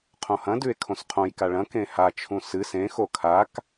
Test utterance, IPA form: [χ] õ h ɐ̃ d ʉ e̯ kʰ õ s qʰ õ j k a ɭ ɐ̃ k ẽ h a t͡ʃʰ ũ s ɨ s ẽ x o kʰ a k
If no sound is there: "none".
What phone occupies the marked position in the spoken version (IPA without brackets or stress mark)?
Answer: qʰ